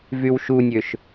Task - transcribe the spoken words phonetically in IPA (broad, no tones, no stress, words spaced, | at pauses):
vywʃunʲøʃ